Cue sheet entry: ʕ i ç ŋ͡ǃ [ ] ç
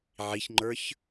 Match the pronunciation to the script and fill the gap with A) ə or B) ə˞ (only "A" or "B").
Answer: B